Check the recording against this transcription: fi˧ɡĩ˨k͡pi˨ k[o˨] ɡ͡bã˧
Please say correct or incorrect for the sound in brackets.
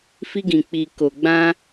correct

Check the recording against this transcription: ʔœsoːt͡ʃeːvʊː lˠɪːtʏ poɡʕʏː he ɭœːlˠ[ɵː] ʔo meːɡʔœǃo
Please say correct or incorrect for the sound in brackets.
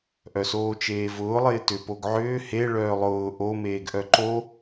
incorrect: ʊː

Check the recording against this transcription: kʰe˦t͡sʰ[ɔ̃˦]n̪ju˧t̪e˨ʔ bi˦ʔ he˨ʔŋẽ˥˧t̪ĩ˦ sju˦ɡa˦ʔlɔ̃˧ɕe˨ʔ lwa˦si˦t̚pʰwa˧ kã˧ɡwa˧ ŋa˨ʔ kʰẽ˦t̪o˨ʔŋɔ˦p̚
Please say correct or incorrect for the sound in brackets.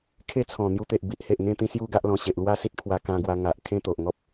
incorrect: ɔ̃˨˩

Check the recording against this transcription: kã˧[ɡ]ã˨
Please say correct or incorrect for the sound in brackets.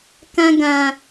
correct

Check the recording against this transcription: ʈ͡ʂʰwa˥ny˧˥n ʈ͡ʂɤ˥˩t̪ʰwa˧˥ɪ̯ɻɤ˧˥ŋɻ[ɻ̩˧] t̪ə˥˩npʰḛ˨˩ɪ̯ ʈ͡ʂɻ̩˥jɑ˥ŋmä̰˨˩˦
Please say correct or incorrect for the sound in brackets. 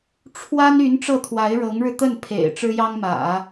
correct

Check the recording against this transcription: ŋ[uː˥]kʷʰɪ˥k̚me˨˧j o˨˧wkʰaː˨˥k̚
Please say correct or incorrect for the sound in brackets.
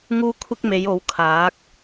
correct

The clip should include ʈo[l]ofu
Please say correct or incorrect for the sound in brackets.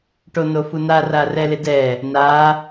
incorrect: n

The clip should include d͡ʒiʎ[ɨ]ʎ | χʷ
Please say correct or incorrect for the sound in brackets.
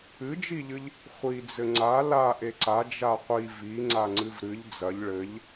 correct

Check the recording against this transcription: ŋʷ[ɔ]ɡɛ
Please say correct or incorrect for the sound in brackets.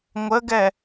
incorrect: ə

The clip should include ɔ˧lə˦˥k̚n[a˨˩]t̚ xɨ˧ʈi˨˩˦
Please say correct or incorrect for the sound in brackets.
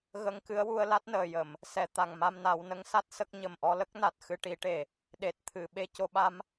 correct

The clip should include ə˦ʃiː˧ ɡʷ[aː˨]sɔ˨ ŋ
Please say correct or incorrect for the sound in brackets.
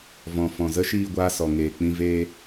incorrect: aː˧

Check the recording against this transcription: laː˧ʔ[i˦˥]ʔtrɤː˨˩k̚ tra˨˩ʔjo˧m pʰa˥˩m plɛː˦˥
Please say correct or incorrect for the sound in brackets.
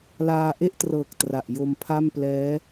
incorrect: e˦˥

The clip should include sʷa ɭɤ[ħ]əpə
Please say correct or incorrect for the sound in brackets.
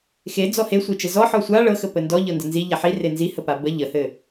incorrect: x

